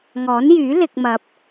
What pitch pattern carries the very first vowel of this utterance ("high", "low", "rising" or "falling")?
rising